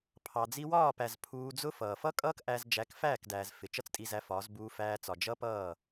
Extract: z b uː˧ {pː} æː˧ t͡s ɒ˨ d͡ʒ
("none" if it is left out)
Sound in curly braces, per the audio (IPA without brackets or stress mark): f